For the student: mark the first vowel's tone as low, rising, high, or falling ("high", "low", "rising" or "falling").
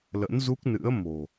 rising